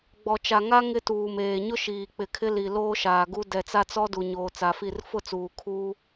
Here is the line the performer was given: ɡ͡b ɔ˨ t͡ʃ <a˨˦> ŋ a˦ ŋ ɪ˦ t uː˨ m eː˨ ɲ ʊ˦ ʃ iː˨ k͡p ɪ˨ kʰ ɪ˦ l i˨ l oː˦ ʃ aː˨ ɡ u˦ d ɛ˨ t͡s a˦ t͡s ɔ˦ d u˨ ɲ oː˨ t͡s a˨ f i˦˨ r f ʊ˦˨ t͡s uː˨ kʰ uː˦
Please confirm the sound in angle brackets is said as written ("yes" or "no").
no